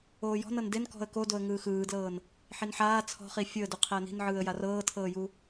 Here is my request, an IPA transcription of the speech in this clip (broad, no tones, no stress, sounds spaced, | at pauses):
oː j ɔ̤ n ɤ n d e n k ɔ̤ ə̯ k o d o ə̯ ŋ ɯː x ɯː d l ɤː n | ħ i n ħ aː t͡sʰ ɔ̤ χ i fʲ o ə̯ d u qʰ ɛ ə̯ n i̤ n ʕ ɯː ə̯ j a r ɤː tʰ ɤː j u